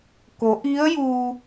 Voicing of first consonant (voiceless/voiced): voiceless